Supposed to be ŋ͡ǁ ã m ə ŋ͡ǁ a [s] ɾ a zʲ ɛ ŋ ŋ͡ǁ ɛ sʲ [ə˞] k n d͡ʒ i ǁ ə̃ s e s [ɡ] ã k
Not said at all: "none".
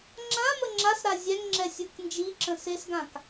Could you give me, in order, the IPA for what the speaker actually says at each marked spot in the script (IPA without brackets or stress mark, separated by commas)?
s, ə˞, ɡ